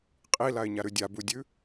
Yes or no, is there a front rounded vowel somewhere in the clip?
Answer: no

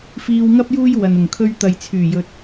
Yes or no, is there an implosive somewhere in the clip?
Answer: no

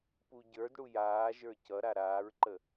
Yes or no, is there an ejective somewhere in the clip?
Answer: no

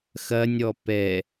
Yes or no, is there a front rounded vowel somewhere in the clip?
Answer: no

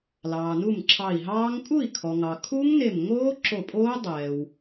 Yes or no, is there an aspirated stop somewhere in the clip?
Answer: yes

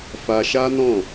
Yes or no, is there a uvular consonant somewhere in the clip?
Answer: no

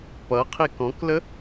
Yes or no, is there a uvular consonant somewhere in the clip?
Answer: yes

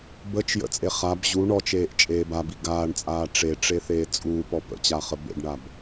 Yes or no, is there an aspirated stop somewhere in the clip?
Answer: no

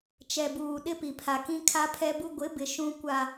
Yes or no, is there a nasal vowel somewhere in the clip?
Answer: yes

